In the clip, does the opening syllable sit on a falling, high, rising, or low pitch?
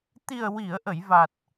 low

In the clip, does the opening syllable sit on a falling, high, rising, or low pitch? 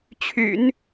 low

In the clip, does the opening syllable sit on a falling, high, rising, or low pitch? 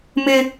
high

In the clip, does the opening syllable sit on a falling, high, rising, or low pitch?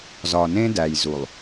low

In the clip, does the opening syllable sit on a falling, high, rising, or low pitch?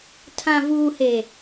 low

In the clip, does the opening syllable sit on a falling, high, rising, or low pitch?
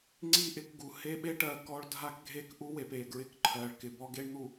falling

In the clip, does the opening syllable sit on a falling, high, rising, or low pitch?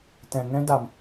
low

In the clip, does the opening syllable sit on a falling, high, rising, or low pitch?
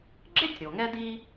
high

